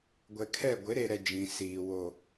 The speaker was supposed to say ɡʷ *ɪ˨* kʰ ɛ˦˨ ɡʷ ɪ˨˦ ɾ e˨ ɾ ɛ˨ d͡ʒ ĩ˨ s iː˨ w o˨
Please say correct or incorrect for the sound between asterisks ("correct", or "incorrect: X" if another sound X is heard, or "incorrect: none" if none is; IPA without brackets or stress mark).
incorrect: ɛ˨